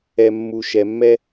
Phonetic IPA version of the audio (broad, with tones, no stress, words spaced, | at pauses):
ɛ˨mːu˨ ʃɛ˨mːɛ˦